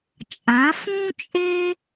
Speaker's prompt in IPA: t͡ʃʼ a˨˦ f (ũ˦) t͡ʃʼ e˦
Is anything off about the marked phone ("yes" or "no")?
no